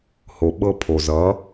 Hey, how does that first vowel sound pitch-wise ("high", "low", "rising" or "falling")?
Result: low